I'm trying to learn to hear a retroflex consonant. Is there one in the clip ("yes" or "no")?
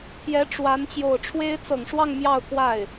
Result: yes